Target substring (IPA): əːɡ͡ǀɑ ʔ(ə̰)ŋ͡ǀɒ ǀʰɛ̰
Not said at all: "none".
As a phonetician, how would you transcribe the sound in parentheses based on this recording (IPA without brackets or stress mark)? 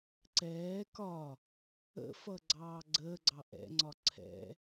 ɛ̰